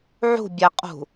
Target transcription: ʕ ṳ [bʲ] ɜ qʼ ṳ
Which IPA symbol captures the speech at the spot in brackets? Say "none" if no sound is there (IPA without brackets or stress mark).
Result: bʲ